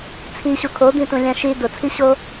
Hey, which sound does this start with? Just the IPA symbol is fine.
t͡sʰ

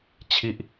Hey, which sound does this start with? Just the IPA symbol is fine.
t͡ɕʰ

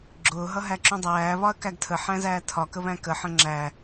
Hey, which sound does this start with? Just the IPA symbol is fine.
ɡ͡ǁ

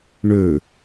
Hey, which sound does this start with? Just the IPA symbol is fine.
ɳ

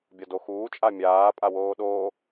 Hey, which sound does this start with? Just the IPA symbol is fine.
bʲ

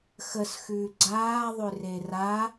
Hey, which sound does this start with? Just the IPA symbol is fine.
x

